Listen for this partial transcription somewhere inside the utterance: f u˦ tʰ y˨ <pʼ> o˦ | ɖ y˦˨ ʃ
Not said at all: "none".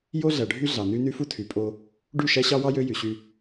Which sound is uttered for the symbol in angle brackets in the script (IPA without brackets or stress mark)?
pʼ